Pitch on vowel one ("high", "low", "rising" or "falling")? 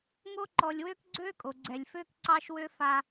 high